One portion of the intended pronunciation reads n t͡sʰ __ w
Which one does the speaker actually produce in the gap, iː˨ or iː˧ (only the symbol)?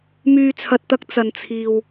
iː˨